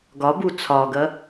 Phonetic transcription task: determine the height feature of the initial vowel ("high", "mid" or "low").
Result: low